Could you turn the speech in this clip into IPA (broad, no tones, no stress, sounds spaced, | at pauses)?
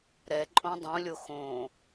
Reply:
ɾ ɛ ǃʼ õ dˤ ũ lʲ o x õ